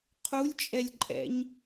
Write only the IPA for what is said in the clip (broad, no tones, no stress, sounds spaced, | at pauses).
qʰ u lʲ t͡ʃʼ ɛ lʲ ǃʼ ɛ̰ ɲ